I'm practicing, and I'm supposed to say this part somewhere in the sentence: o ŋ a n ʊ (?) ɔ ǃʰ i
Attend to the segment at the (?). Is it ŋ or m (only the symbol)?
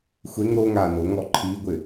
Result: ŋ